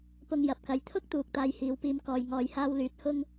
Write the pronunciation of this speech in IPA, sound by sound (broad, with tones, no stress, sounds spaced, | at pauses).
p ʊ˧ ŋ j ɐ˨ p̚ k ɐ˨ j t̪ʰ ʊ˥ k̚ t̪ uː˨ k̚ t̪ aː˧ j h iː˨˧ w p iː˧ m k ɔː˨ j ŋ ɔː˨ j h aː˧ w l yː˨˥ t̚ h ʊ˥ ŋ